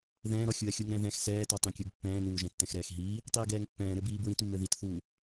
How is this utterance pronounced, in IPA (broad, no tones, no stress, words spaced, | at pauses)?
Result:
ðɛ̃ːɾɔ xʲuɐ̯xʲuŋɾɛ̃ðɛ̃x sɛːtɔtˤĩkʲuɡ pːɛ̃ːnuːʒɛ̃ tːɛ̃xɾɛːxɦiː | tˤiːɡɛːŋpːɛ̃ː ɾɘbiːbɹĩtmːɘ ðitθuː